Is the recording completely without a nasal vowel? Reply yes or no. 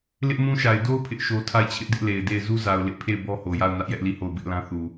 no